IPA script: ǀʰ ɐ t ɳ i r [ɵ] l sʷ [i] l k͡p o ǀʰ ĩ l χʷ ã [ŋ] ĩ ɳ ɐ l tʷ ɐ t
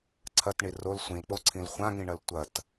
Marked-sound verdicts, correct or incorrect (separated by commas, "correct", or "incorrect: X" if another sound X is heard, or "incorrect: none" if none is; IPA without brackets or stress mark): incorrect: o, incorrect: ĩ, correct